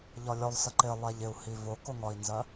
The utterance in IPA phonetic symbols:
ʎ ɒ lʲ ɔ lˠ s ə ǃ ɪ lˠ ɛ ʎ ɪ u̯ h i v ʊ k ʊ ŋ ɒ i̯ n z ɜ

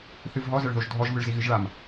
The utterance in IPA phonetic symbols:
θ ɨ v ɦ ɔ z ɐ ɭ ð o ʒ dʱ ɔ ʒ v ɨ ɭ z i ɣ ɨ ʒ ɭ a m

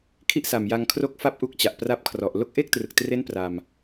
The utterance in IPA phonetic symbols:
kʰ i˥˩ ʔ s a˨˩ m j a˧ ŋ kʰ r o˦˥ k̚ f a˦˥ p̚ ʔ u˦˥ k̚ t͡ɕ a˨˩ ʔ p r a˦˥ p̚ kʰ r ɔ˨˩ ʔ l o˦˥ k̚ ʔ e˥˩ k̚ t r ɯ˨˩ k̚ t r e˦˥ n p r a˧ m

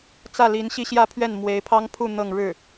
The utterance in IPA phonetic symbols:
t͡s ä˥˩ l i˧˥ n ɕ i˥ ɕ j ä˥˧ pʰ ɥ ɛ˥˩ n m w e˧˥ ɪ̯ pʰ ɑ˥ ŋ pʰ u˥˧ n̪ ɤ˥˧ ŋ ɻ ɻ̩˥˩

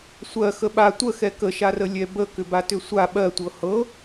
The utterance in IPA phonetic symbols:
sʷ ɜ x ə ɓ a tʷ ə x ɛ k ə ʃ a r ə lʲ ɛ b ə k ʏ b a t ʏ sʷ a ɓ ɜ tʷ ɤ h ɤ

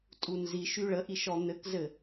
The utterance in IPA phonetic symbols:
tʼ u n z i ʃ y ɭ ə ʔ i ʃ ɔ n̪ ɘ k z ɘ

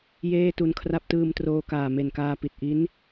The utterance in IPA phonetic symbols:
j eː˥˩ t u˧ n kʰ r a˦˥ p̚ t ɯː˧ m t r oː˧ k aː˨˩ m e˨˩ n k aː˧ p i˨˩ t̚ ʔ i˦˥ n

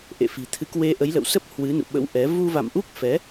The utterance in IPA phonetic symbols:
ʔ ḛ˧˨ f i̤˨˩ t̪ʰ ɨ˨˦ k w e˧ ʔ ə˨˦ j l ə̰˧˨ w s ə˦˥ p̚ h w ɨ˨˦ n ṵ˧˨ ɓ ə̰˧˥ w ʔ ɛ˨˦ v u˧ v a̰˧˨ m ʔ u˦˥ k̚ f ɛ˨˦

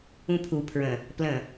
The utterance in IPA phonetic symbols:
ũ pʰ u pʰ ɹ ə̃ | p l ə̃

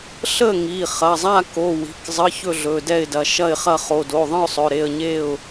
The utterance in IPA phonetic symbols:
ɬ ə˥˨ ŋ i˩˧˩ χ ɐ˩˧˩ zˤ a˥˨ k o˩˧˩ w i̤˩˧˩ k zˤ ə˩˧˩ ç ɵ˥˨ ɮ ɵ˩˧˩ d ɛ˥˨ ɪ̯ d ɐ˩˧˩ ʃ ɐ˥˨ ɪ̯ χ ɐ˥˨ χ o˩˧˩ d o˩˧˩ ðˤ ə̃˥˨ ʊ̯ sˤ ɵ˩˧˩ ɾ e˥˨ ə̯ ɲ e˥˨ ʊ̯

